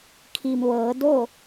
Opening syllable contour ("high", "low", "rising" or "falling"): low